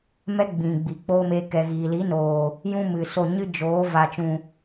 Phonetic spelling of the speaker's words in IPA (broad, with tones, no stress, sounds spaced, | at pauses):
m ɛ˦ ɡ͡b ĩ˨ ɡ͡b i˨ k͡p oː˦ m eː˧ k ɛ˨ ɣ iː˨ l i˨˦ n oː˨ | j ũ˦ m ɨ˨ s o˦˨ ɲ ɨ˦ d͡ʒ oː˨˦ v a˨ t͡ʃ ũ˨